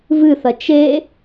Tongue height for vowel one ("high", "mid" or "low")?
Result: high